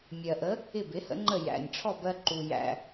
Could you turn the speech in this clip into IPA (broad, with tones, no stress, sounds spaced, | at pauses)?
mʲ ɜ˩ ʔ ə˩˥ | ɪ˥˩ b ɪ˩˥ h ə̰˩˥ ŋ͡ǃ ə˥˩ j æ̰˩ nʲ ʈ͡ʂʰ ɔ˥˩ b ɜ˧ ǃ u˩ j æ̰˩